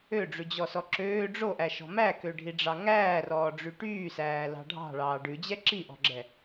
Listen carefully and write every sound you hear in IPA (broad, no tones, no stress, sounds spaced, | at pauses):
ø ɖ͡ʐ ʉ d͡ʑ ɔ s ɔ ǁ øː ɖ͡ʐ o ʔ æ ʃ ɔ̤ m æ k ø ɖʱ i ɖ͡ʐ ɑ ŋ æː r ɔː ɖ͡ʐ y ʈ yː s æː l ɑ̤ ɖʱ ɑ̤ ɭ ɑː ɖ ʉ d͡ʑ ɛ ǁ i ʔ ɔ̤ ɡ͡ǁ ɛ